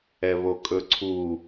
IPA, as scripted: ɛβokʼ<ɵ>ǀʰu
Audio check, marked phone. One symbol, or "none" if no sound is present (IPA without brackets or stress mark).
ɵ